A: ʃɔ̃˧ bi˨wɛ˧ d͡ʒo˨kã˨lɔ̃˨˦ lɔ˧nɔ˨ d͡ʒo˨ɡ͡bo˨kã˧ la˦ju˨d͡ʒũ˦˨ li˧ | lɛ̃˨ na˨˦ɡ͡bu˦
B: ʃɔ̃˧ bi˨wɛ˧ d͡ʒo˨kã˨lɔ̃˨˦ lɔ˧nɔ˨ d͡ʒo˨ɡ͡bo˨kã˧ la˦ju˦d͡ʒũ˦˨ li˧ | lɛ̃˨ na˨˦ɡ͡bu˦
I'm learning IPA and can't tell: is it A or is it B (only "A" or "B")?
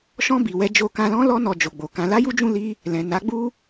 B